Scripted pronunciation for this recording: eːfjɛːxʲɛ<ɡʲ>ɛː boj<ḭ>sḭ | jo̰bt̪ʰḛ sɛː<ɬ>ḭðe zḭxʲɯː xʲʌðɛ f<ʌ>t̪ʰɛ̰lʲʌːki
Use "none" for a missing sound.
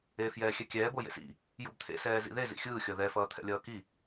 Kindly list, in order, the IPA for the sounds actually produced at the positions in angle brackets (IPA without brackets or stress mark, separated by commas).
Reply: kʲ, ḛ, z, ʌː